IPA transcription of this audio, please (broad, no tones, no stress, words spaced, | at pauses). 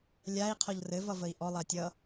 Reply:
lʲai̯ qʰɔʎrɘvʌ vəi̯ʔɔ lˠatʲʌ